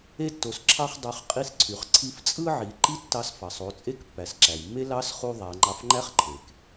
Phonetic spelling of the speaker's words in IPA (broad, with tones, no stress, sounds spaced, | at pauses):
e˧ tː o˩ s ǁʰ ɑ˧ χ dˤ ø˩˧ χ qʼ i˧ s ǀʰ y˩ χ ǀʰ i˧ f t͡sʼ ɯ˥ ʕ i˩˧ ǃ i˥ tː ɑ˧ s f ɑ˩ sˤ o˩˧ t͡sʼ e˥ k pː æ˩ s ǁ æ˩ j mː e˥ l ɑ˧˥ s χ u˧ ðˤ æ˩˧ ŋ͡ǃ ɑ˧ f ŋ͡ǃ æ˥ χ ǃʰ e˩ k